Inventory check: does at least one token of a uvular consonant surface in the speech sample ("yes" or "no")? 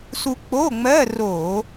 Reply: no